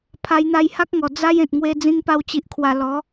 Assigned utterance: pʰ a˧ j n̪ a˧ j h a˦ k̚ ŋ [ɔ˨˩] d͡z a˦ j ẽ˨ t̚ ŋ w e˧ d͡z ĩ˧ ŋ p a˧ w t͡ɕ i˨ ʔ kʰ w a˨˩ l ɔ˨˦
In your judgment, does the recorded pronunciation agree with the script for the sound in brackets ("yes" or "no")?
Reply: yes